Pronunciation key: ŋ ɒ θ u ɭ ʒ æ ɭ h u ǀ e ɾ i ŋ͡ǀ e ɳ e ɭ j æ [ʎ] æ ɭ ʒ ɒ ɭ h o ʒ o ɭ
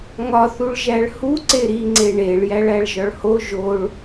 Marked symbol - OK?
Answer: no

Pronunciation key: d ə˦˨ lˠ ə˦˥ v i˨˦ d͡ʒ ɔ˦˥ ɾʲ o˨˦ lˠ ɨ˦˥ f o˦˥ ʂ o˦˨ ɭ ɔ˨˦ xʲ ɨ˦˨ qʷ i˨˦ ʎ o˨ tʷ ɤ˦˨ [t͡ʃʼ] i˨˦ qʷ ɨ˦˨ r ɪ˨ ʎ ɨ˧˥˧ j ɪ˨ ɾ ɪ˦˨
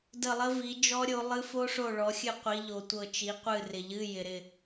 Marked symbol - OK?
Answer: no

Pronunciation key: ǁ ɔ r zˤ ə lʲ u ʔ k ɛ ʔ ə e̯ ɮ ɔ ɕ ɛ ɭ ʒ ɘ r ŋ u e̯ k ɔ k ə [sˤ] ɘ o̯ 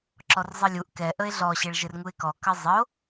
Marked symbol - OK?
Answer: no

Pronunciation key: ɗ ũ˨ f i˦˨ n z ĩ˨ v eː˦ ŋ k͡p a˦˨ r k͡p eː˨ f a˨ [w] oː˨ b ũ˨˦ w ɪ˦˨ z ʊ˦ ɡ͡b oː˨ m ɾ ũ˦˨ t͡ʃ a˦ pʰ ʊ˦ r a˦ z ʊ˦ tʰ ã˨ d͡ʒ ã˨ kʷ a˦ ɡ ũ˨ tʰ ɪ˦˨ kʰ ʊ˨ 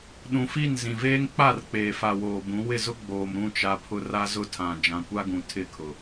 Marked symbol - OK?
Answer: yes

